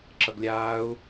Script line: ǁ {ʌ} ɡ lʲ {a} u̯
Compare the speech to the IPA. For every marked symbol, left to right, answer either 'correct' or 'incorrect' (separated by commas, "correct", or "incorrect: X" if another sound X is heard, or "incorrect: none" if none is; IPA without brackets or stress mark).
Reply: correct, incorrect: aː